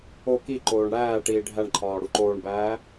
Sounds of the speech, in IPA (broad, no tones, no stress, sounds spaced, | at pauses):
o k i ǃ oː ɳ ɽ æː ʈ iː ɖʱ æ ɳ ǃʰ ɒː ɽ u ǃ oː ɳ b æː